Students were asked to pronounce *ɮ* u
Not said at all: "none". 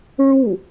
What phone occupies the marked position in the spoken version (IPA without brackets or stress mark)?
ɹ